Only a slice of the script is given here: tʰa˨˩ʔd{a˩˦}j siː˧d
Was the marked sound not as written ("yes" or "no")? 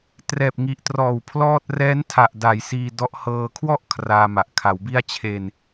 no